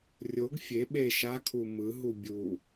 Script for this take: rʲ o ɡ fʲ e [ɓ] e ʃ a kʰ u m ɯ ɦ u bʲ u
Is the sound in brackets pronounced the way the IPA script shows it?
yes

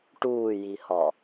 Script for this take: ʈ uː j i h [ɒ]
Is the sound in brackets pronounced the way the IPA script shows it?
yes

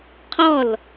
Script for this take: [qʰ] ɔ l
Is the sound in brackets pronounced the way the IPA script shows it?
yes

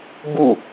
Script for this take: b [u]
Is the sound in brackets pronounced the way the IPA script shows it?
yes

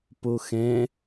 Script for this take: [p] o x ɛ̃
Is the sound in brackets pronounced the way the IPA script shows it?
yes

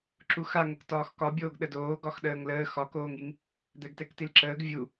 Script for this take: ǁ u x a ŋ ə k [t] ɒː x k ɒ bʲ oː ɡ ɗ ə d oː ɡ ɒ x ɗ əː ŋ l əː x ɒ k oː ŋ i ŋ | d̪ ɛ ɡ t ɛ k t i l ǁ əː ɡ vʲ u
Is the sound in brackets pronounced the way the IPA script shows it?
yes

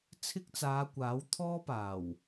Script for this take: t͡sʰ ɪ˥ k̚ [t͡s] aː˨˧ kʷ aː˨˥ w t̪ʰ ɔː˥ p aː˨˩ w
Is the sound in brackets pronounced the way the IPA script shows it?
yes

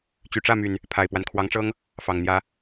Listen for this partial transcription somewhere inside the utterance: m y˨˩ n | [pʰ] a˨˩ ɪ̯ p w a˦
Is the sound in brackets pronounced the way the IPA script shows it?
yes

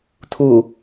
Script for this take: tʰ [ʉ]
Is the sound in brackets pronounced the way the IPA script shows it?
no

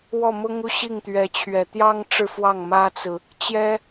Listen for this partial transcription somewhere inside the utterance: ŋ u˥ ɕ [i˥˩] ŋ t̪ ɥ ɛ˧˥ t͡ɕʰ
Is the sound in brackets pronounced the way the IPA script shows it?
yes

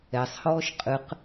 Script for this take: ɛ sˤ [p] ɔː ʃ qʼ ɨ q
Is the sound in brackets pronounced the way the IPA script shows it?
no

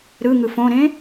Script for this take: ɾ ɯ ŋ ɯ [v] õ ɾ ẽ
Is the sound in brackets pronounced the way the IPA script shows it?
no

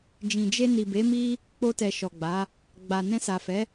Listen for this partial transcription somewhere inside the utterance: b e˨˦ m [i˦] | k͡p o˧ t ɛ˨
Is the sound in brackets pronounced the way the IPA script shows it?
yes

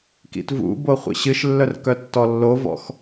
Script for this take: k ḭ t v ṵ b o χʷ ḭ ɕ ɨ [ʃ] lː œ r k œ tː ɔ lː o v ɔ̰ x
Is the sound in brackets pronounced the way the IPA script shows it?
yes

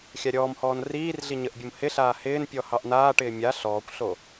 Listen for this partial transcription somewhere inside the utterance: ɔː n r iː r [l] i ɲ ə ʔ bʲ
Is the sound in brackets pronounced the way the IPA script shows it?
no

